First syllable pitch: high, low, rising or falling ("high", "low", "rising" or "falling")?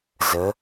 rising